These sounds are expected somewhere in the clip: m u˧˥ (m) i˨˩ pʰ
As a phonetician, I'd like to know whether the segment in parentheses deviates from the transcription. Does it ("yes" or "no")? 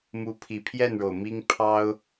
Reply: yes